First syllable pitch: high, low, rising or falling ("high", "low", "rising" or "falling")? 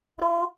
high